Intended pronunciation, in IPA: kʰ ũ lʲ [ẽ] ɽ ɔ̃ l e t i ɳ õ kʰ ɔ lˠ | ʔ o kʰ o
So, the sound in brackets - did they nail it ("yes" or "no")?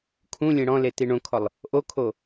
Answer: yes